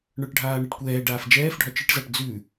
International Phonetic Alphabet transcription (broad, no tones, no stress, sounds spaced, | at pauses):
ɳ ə˞ ʈ ɖʱ aː ɳ ɛ ʈ kʷ ɛː ɖ aː f d͡ʒ ɛː f ɖʱ ɒ t͡ʃ ɨ ʈ z a ʈ d͡z ʉ